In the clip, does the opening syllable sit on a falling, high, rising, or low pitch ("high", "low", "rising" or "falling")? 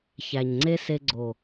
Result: low